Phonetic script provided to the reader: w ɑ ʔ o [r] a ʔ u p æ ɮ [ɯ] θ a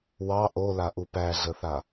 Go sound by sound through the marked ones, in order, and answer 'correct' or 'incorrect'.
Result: incorrect, incorrect

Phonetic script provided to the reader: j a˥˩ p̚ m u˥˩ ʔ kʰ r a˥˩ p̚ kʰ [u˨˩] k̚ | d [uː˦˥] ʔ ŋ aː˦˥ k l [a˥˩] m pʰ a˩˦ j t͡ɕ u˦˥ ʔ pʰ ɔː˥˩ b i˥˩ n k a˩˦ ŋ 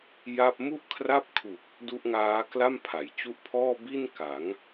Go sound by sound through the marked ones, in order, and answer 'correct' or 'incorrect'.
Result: correct, incorrect, correct

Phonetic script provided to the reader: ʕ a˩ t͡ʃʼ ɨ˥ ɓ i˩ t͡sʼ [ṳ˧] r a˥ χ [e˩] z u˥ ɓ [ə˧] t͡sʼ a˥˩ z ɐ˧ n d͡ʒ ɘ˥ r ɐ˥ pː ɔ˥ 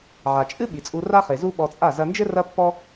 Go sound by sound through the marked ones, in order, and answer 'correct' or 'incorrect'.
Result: incorrect, correct, incorrect

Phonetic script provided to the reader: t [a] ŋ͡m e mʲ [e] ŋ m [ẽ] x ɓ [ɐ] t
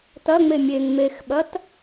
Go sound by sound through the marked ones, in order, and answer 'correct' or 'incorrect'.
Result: incorrect, correct, incorrect, correct

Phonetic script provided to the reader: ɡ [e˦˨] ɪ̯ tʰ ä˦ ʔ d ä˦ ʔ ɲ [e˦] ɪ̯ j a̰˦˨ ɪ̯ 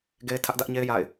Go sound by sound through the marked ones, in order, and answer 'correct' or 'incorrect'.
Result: incorrect, correct

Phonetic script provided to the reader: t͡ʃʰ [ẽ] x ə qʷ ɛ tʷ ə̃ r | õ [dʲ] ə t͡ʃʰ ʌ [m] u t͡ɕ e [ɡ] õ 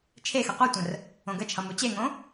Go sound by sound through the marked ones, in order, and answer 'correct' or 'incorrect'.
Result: incorrect, incorrect, correct, incorrect

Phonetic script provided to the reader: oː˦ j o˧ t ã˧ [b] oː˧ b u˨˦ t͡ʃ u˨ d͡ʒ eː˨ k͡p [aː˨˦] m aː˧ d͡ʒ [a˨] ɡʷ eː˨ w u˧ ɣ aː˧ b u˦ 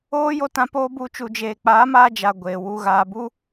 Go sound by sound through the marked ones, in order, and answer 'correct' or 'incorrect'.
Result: incorrect, correct, correct

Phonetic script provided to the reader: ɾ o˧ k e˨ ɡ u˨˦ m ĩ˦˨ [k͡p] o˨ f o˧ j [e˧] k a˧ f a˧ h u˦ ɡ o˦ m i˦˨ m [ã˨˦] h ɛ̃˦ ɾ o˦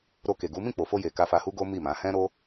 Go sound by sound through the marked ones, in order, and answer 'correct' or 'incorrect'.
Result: correct, incorrect, correct

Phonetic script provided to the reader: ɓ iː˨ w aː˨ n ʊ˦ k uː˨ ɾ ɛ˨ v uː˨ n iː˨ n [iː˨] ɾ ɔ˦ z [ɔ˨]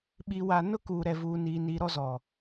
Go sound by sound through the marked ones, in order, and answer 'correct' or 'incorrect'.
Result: correct, correct

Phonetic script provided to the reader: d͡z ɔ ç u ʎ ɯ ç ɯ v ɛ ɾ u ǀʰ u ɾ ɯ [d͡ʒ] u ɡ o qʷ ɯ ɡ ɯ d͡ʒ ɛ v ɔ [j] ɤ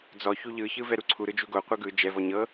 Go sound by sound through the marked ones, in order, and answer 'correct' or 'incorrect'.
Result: correct, incorrect

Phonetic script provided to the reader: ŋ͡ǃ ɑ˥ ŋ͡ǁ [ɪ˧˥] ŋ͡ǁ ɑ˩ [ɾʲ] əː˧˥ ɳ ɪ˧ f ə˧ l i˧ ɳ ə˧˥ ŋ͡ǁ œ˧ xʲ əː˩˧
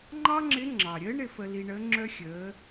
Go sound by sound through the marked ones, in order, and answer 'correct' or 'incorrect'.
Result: correct, correct

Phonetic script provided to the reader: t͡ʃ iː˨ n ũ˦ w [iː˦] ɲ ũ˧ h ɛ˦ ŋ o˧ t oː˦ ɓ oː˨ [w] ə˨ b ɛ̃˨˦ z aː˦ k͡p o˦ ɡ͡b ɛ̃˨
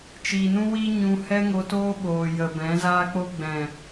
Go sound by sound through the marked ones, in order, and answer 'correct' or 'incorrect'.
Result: correct, incorrect

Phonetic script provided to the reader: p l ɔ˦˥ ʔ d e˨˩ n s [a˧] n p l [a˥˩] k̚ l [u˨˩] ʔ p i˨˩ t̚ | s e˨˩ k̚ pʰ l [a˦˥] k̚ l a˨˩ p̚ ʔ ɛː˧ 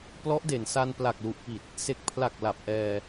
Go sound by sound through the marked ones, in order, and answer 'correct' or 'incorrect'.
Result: correct, incorrect, correct, incorrect

